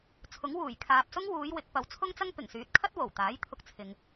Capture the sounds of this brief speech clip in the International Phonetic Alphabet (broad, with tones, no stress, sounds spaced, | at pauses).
t͡sʰ ʊ˨˥ ŋ w uː˨˩ j kʰ aː˨ p̚ s ʊ˥ ŋ w uː˨˧ j w ɪ˨˥ k̚ p ɐ˨˥ w t͡sʰ ʊ˥ ŋ t͡s ɐ˥ ŋ p ɪ˨˩ ŋ s yː˨˥ t̚ kʰ ɐ˥ t̚ w o˨˩ w t̪ aː˨˥ j t̪ʰ ʊ˧ k̚ t͡sʰ ɪ˨ ŋ